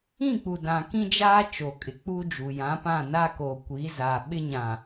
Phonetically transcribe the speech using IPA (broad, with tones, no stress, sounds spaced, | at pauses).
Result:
ĩ˦˨ k͡p u˨ d ã˨ k ĩ˦ d͡ʒ aː˦ t͡ʃ o˨ kʼ ɪ˨ k͡p u˦ d͡ʒ u˨ j ã˨˦ p ã˦˨ n a˦ k oː˨ kʷ i˨˦ z a˨ ɓ ɪ˦ ɲ ã˨